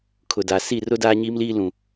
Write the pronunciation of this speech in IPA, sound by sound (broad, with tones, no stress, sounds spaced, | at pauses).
kʰ ʊ˨ d a˨ s i˦˨ r ʊ˦ d aː˦ ɲ iː˦ m l iː˦ l ũ˨